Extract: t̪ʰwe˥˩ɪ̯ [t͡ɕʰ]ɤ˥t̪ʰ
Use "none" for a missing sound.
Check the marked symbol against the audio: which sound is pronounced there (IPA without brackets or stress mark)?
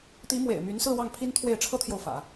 ʈ͡ʂʰ